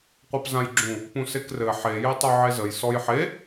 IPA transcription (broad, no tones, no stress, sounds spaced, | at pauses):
qʷ e p z ã j ɡ͡ǁ ũ | p ũ s e k r ɘ ħ e j e tˤ u ʕ e z ə j s ɔ j ħ e